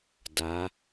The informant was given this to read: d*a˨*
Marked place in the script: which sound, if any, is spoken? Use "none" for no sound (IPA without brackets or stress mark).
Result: a˨˦